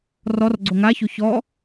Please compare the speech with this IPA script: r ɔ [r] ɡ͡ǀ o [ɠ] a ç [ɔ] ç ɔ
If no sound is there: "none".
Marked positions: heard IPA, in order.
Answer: r, ŋ, o

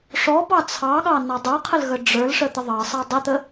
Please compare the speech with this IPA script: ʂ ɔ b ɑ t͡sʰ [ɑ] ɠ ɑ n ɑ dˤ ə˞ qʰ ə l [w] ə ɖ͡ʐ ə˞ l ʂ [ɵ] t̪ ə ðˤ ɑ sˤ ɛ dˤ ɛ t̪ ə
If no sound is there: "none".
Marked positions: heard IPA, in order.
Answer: ɑ, ɣ, ə

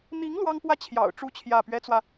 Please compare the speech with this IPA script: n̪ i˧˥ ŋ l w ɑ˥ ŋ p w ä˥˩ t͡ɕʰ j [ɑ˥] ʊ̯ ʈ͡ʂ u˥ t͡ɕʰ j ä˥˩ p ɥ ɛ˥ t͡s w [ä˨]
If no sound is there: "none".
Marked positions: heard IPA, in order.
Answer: ɑ̰˨˩, ä˨

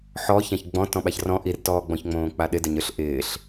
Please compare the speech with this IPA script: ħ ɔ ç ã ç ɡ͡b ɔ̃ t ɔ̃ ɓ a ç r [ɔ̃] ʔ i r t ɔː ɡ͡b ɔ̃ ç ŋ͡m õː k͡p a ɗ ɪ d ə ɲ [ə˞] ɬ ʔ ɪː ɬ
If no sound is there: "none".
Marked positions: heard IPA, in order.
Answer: ɔ̃, ə˞

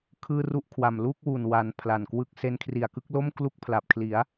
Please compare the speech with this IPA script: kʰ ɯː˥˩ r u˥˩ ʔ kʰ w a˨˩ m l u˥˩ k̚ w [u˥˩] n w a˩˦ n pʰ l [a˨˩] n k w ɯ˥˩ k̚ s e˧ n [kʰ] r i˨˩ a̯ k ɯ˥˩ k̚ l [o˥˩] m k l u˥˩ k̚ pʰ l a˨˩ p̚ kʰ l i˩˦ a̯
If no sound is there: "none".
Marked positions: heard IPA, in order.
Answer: u˨˩, a˨˩, kʰ, o˥˩

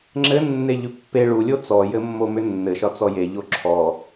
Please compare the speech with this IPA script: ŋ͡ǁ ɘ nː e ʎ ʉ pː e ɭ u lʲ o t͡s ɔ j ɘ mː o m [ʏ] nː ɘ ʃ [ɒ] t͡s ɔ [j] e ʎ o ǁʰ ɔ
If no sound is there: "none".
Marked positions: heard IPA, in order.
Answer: ʏ, ɒ, j

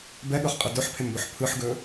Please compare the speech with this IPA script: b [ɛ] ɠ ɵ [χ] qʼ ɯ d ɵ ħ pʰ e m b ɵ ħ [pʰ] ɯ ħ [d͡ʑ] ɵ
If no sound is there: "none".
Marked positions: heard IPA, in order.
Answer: ɛ, χ, pʰ, ɡ

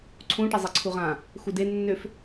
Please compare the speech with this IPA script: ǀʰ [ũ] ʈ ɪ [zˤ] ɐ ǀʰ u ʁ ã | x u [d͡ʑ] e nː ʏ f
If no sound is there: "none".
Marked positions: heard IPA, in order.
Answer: ũ, zˤ, d

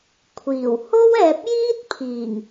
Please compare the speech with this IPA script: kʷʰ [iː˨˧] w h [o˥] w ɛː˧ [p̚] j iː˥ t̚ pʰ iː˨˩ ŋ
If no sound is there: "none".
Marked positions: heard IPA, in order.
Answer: iː˨˩, o˥, p̚

